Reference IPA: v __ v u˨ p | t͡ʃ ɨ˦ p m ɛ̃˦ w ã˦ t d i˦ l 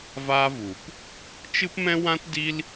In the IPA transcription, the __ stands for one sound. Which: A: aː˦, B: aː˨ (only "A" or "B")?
A